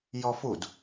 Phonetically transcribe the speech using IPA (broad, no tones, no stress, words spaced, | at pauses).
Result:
jɔfud